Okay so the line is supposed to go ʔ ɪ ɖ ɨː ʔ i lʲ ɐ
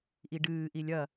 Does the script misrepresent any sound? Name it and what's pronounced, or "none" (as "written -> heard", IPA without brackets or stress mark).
ɪ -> i